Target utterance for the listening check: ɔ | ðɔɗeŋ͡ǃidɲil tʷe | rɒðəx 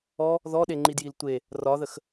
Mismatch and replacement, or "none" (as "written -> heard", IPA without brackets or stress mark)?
ɲ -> j